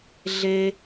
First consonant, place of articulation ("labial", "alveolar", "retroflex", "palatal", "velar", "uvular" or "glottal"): alveolar